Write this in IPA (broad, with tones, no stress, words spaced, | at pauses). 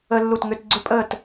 ə˥lːu˥˨tŋʏ˥t ɡ͡ǀʏ˥pʼəː˥˨t